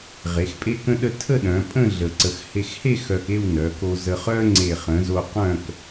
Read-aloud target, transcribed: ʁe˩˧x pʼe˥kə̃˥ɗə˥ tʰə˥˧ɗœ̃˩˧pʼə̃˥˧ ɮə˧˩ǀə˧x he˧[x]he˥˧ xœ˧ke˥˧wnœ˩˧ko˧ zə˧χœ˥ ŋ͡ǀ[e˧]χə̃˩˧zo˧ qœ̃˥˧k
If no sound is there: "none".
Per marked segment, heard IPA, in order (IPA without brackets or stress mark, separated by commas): x, e˧˩